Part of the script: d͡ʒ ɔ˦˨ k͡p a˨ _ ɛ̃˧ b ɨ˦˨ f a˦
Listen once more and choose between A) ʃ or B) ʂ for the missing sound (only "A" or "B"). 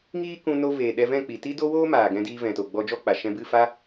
A